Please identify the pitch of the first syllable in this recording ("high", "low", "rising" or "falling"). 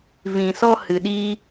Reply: low